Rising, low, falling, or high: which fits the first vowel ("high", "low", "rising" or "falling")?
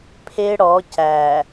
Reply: high